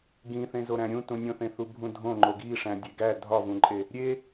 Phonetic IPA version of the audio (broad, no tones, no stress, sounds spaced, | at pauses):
ɡ ĩ θ ẽ z o ɾ æ̃ ɾʲ ũ t ũ nʲ õ θ ẽ θ u bʱ ũ dʱ õ ŋ͡ǃ o ɡ i ʂ æ̃ dʲ e ɡ æ dʱ ɒ v ũ ǃʼ e | ɾʲ e